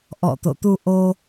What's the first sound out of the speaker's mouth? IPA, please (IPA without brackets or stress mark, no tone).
ʔ